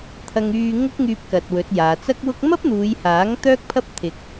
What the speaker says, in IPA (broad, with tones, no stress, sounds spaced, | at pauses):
t̪ʰ ɐ˧ ŋ yː˧ ŋ ʊ˥ k̚ ŋ yː˧ p̚ k ɐ˨ t̚ w ɵ˨˥ t̚ j aː˨˧ t͡s ɐ˥ k̚ w ʊ˥ k̚ m ɐ˥ p̚ n̪ uː˨˧ j h aː˨˥ ŋ t̪ œː˥ k̚ pʰ ɐ˥ p̚ t̪ʰ ɪ˧ k̚